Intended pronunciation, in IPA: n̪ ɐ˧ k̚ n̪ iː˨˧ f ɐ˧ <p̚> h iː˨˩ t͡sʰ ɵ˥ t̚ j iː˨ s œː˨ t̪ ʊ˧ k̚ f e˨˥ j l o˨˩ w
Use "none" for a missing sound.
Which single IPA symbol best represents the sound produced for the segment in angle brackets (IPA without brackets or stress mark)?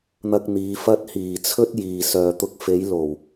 t̚